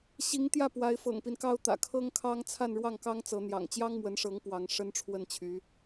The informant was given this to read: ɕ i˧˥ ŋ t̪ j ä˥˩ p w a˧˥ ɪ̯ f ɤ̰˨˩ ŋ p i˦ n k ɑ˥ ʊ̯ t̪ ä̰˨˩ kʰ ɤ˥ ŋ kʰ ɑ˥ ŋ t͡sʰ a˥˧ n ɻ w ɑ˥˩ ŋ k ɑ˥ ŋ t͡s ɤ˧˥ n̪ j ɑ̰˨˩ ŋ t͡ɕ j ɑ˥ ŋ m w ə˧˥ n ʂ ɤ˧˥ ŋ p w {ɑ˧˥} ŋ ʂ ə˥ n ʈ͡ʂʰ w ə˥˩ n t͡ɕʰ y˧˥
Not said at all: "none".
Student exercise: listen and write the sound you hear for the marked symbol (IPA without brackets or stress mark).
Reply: ɑ˧˥